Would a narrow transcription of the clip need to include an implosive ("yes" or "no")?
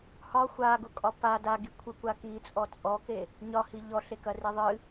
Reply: no